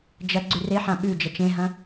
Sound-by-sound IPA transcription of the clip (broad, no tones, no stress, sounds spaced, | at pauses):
d͡ʒ ɐ ɡ͡ǀ ʉ r e ħ ã ɓ ʉ d͡ʒ ɐ t͡ʃ ẽ ɦ ɐ̃